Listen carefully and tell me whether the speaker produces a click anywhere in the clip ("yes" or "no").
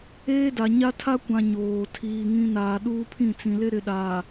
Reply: no